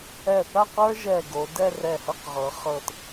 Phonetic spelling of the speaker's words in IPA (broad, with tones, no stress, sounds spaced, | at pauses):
ɛ˧˩ θ a˥˧ q ə˞˥ ʒ ɛ˧˩ ɡ o˩˧ d ɛ˥˧ r ɛ˧˩ h ɤ˥˧ q ʁ ɤ˩˧ χ ɤ˧˩ t